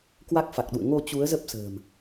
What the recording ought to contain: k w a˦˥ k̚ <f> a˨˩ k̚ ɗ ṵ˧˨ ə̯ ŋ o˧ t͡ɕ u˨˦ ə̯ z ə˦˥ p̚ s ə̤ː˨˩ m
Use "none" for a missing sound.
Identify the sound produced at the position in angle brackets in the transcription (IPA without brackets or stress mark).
f